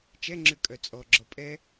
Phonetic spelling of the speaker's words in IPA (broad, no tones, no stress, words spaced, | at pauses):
t͡ʃɛŋ͡ǁʉ kʼœt͡sʼɔɡ͡ǁɔ pʼɛ